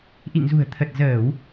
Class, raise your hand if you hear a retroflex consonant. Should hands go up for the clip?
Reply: no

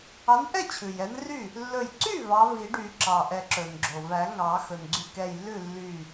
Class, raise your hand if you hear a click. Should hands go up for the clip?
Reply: yes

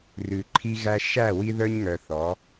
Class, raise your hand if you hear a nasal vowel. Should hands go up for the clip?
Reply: no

